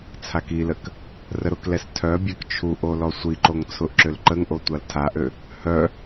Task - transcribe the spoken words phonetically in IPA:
t͡sʰakilək | rəɾʊklɛs tʰœ bʲœkt͡ʃʰuʔo lɔsʷiǃoŋ t͡sʰʊʔǁʏl ǃəŋʔo tʷaltʰaʔø | hœ

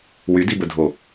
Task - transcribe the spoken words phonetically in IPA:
wydibədʱo

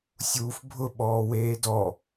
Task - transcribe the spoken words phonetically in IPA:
sʲuːfbʱʊ ɓɔːweːdɔ

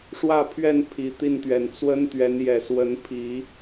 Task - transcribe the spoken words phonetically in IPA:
ʂwä˥˨pʰɥɛ˥˨n pʰi˨˩t̪i˥˨nt̪ɥɛ˨˩n t͡swə˦n t̪ɥɛ˨˦njɛ˨˩ swə˨˦npʰi˨˦

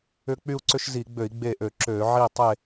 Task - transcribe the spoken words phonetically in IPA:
ʏ˦k͡py˦u̯ǀʏ˦ʃ zi˧˩˧ɡ͡bø˧˩˧i̯ ɡ͡be˦˨ʔø˧˩˧ǁø˧˩˧ ʕi˦˨tˤe˦˨

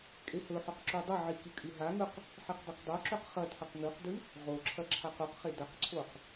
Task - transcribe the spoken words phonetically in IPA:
kʼehɵħɵq ǁudˤɐʕi kikʼʉɦaŋɵq | ħiqdˤɐqdˤoǁɵq χɐ tʰɐqŋʉqdʉ | ʁoǁʰɐ ǁʰaqoqχe dɐqǀʰoq

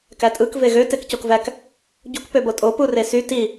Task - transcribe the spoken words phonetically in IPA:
kætʼɯk veɣø tekcokvæk | ɟuk pøbotʼo puresy ti

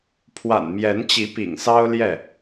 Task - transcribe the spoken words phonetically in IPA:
pʰwa̰˨˩nmjɛ˨˦nt͡ɕi˨˦ pḭ˨˩ŋsɑ˦ʊ̯ ljɛ˥˨

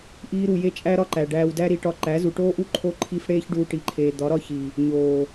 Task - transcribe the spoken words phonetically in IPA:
ʔiː˦ɾu˧ je˦t͡ʃʼæ˦ɾɒ˦ǃæ˨ ɖæː˧wdæ˦ ɾi˧ʈɒ˦˨ ǃæ˨˦zu˨ʈoː˦ʔu˦ ǃʰo˦ ǃʰi˦f ɽeː˦çɖuː˧ʈi˨ǃʰeː˨ d̪ɒ˨˦ɾɒ˦ çi˨ | ɲoː˨

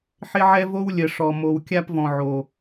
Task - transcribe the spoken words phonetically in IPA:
ħɪ˦ʕɛ˦ vo˦wlʲə˨ʂɔ˨ mo˨w kʲa˧pvɔ̃˨ ʕo˨

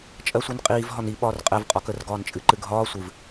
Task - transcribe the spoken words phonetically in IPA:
t͡ʃʼɜsʷinqʼiːv ɦɒni ɓɒːrqʼɛv qʼɒkər ɡɒːnt͡ʃʼɨǃɨɡʱɒː sʷɨv

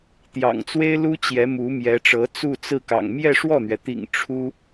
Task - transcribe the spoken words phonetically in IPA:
t̪jɑ̰˨˩ŋt͡swe˥ɪ̯lu˥ t͡ɕjɛ˧˥mu˧˥mjɛ˧˥ʈ͡ʂɤ˧˥ t͡su˥˧t͡sɹ̩˥˩kɑ̰˨˩ŋ mjɛ˥˧ʂwɔ˥˩n̪ɥɛ˩t̪ḭ˨˩ŋ ʈ͡ʂʰu˥

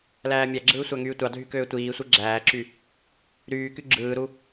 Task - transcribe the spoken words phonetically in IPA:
læːmʲæɡ͡ǁɯː sʷæŋyːtʷɑdʱy køːtʷiːsʷɯ ɡ͡ǁæːǁy | ɾyːky ɡ͡ǁɯːɾu

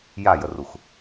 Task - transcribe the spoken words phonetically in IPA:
jajərux

